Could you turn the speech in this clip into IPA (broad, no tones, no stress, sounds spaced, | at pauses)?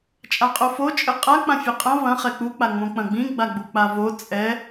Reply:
t͡ʃʼ a qʼ o f o t͡ʃʼ ɘ qʼ a k͡p ã fʲ ɐ qʼ ɐ̃ v ɐ̃ χ ɛ k͡p u k͡p a ŋ͡m õ k͡p ɐ̃ ɡ͡b ĩ ɡ͡b a ɡ͡b u k͡p a v o t͡sʼ ɛ